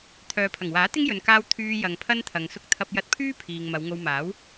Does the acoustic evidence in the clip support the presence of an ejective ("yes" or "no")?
no